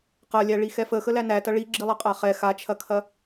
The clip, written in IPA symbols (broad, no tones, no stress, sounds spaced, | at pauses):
q ɐ lʲ æ ɭ i x ɛ f ə x ə l æ n æ t ɐ ɭ i ɡ͡ǁ i lˠ ɐ qʼ a χ ɛ x a t͡ʃʰ ɐ kʰ ɐ